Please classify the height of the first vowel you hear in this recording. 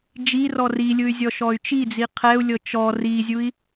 high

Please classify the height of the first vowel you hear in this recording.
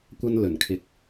low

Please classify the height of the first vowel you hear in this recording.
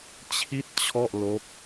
high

